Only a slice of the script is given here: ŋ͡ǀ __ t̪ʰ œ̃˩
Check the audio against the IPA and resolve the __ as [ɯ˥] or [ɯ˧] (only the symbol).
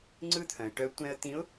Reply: ɯ˥